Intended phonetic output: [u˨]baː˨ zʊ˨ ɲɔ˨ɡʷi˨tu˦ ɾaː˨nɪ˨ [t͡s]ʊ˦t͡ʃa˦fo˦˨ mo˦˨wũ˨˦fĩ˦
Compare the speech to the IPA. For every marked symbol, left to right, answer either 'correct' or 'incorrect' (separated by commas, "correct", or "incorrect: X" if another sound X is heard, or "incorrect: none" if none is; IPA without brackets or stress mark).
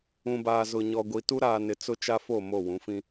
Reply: incorrect: ũ˨, correct